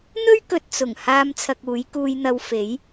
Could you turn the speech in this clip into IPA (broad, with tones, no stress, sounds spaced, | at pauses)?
n̪ ɵ˥ ɥ k ɵ˨ t̚ t͡s ʊ˨˩ ŋ h aː˧ m t͡sʰ ɐ˨ k̚ uː˨˥ j k uː˧ j n̪ ɐ˧ w f e˨˥ j